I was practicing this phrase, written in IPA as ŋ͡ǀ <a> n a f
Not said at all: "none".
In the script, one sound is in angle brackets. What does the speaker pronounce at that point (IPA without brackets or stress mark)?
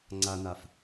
a